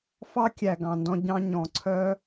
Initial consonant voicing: voiceless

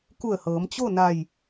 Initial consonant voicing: voiceless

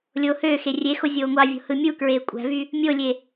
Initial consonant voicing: voiced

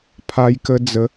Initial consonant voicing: voiceless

